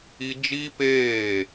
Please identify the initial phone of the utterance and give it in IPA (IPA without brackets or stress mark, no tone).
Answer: i